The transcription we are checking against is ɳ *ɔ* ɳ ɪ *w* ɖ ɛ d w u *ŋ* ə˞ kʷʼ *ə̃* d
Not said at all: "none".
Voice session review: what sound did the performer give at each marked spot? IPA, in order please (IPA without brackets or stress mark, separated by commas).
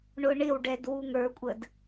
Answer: ʊ, w, ŋ, ə